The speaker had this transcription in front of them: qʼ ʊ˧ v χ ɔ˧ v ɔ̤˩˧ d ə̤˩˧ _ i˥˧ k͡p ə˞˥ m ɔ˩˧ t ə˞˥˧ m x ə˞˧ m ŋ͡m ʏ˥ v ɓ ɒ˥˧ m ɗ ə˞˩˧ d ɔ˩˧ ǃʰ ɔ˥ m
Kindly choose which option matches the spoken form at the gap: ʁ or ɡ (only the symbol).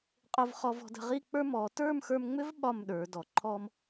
ʁ